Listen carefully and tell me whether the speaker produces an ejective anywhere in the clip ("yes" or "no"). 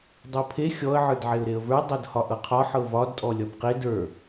yes